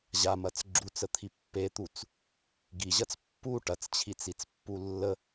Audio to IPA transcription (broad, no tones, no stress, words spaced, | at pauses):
ʑamɐt͡s ɡ͡ǁut͡sət̪ʰi pːet̪ut͡s | ɡiʑɐt͡s pːu ʈɐt͡st͡ɕʰit͡sit͡spːu lːə